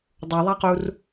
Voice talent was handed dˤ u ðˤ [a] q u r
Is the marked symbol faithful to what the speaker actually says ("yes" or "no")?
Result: yes